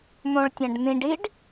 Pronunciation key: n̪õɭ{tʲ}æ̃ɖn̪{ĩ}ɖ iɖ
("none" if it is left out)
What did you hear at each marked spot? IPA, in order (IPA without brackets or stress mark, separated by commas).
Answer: tʲ, ĩ